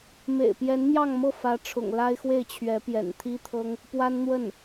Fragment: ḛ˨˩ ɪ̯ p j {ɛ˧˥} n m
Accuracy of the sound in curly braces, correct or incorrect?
correct